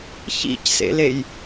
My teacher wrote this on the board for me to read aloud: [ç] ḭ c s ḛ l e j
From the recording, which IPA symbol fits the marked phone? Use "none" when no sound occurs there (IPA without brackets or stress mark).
ç